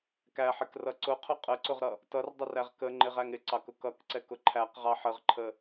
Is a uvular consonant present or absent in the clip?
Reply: present